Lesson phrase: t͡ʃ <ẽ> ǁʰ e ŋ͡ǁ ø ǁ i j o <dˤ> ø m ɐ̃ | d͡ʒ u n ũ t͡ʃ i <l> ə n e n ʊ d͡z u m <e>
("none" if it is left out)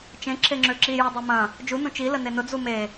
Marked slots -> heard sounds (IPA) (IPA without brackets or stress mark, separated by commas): ẽ, dˤ, l, e